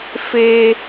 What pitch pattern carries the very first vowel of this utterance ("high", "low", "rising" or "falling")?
high